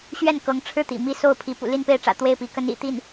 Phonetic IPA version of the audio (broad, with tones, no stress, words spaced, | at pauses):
ɕɥɛ˥˩n kɤ˧˥ŋʈ͡ʂʰɻ̩˥˩ t̪ḭ˨˩mi˥˧so˥˩ʊ̯pʰi˧˥ pṵ˨˩li˥˧npe˥˩ɪ̯ʈ͡ʂä̰˨˩ t̪we˥˩ɪ̯pi˧˥ kə˧˥n ḭ˨˩ t̪i˥˩n